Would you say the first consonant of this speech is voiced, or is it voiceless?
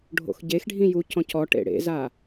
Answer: voiced